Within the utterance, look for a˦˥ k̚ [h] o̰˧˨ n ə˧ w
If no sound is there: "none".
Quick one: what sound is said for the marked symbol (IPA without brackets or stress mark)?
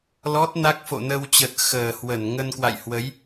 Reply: f